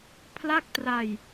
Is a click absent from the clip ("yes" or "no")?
yes